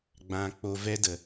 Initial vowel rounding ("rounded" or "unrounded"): unrounded